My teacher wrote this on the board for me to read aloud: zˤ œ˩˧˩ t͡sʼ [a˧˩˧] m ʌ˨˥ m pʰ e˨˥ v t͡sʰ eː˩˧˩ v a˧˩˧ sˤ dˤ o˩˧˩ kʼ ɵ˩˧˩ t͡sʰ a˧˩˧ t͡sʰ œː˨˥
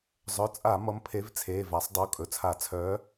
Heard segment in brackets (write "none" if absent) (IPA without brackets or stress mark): a˧˩˧